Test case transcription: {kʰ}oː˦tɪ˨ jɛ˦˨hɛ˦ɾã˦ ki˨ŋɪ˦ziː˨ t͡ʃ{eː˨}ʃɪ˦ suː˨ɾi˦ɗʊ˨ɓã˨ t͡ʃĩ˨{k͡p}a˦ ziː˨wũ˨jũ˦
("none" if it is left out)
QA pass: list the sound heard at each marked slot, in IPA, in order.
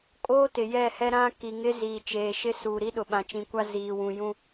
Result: kʼ, eː˨, kʷ

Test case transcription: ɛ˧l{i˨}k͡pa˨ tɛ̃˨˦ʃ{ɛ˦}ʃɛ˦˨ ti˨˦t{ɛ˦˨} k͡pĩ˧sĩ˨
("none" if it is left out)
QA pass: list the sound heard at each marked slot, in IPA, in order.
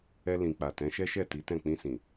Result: ĩ˨, ɛ˦, ɛ̃˦˨

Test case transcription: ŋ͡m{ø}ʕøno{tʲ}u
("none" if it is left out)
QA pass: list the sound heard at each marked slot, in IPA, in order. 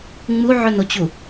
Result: u, t͡ɕ

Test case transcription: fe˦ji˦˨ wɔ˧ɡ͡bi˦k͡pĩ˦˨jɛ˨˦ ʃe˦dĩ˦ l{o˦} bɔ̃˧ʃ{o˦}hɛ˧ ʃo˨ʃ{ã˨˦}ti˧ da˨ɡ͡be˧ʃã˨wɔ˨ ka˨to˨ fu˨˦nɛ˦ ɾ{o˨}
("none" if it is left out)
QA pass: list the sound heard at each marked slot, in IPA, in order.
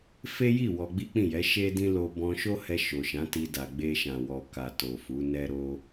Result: o˧, o˦, ã˨˦, o˧

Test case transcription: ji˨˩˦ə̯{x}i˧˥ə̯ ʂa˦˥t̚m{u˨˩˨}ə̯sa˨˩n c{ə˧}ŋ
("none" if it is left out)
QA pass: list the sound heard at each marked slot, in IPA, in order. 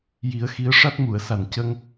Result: x, u˨˩˨, ə˧

